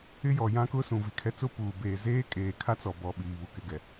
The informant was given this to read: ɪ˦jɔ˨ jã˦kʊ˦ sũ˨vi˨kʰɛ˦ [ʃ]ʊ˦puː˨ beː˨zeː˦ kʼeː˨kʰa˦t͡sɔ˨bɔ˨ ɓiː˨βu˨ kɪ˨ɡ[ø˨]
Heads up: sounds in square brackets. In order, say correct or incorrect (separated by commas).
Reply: incorrect, incorrect